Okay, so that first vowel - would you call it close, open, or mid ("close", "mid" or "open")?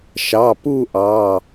open